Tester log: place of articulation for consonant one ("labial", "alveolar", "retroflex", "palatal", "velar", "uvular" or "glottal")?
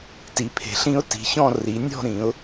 alveolar